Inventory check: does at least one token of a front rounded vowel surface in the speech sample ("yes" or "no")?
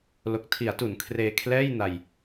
no